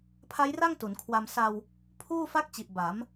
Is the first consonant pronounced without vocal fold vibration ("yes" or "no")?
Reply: yes